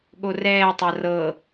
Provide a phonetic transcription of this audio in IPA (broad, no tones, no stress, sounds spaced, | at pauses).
ɠ o r ɛː tˤ a r ɤ